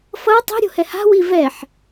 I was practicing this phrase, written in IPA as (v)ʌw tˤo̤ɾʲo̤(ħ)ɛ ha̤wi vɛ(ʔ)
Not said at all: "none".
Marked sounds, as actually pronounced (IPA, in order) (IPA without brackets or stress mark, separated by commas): f, h, ħ